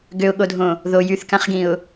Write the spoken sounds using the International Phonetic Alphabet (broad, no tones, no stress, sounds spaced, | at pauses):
ɡ ø ʊ̯ ɠ o dʱ õ | ð o j y θ k ã χ ɡ ĩ ʊ̯